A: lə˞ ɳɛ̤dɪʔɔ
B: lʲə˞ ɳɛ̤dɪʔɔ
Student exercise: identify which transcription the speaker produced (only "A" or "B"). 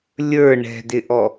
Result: B